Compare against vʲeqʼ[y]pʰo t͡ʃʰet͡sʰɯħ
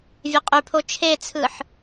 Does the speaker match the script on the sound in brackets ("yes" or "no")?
yes